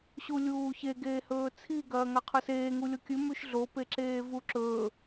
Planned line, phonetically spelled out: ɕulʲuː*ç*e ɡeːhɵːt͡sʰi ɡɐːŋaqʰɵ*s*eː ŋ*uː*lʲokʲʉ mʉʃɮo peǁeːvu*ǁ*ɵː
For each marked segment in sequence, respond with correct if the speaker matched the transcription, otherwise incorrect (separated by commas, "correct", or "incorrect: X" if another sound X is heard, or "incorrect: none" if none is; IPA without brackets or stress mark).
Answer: correct, correct, incorrect: u, correct